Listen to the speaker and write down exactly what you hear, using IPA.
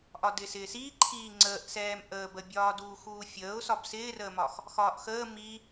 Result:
ʔ ɒ d ɪː s ɪː s iː ǃʰ iː ŋ͡ǀ əː ʔ s ɛː m ʔ əː b ə bʲ ɒː d uː x uː fʲ əː ʊ̯ s ɒ b s ɪː r əː m ɒ x | x ɒː ʔ x əː m i

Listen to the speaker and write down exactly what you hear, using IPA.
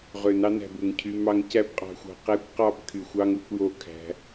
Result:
ʁ ø˨ n ɑ˧ n æ̤˨ b u˨ ŋ cʰ y˧ m ɑ˦ ŋ c æ˦ b qʼ ɑ̤˧ xʷ ɑ̤˧ q æ˦ kʷ q ɑ˦ b kʰ y˨ xʷ ɑ˦ ŋ u˧ kʷ j o˦˨ kʰ æ̤˧

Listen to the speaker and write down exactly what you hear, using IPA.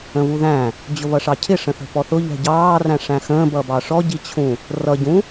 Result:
ə̃ β u ð æ̃ | d͡ʑ ʊ β ʌ ʂ ɑ cʰ ɪ ʂ ə̃ θ ə̤ p ɔ θ ʊ ʎ ɛ̤ ɟ ɑː r æ̃ ʂ æ̃ x ə̃ː b ʌ b ɑ ʂ ɔ ɟ i t͡ɕʰ ũ | r ʌ ɟ ũ

